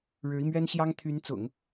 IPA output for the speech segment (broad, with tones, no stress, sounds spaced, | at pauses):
ɻ ɻ̩˧˥ i˧ m ɥ ɛ˥ n ɕ j ɑ˥ ŋ t̪ʰ y˧˥ n t͡s ʊ̰˨˩˦ ŋ